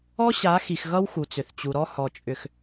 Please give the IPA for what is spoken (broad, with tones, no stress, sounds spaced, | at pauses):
ɔ˦ ɕ a˨˦ x i˨ x ɣ ʌ˦ w x u˨ t͡s ʏ˨ θ t͡ɕ u˨ ɾ ɔ˦ h ɔ˨ t͡ʃʼ ʏ˨ x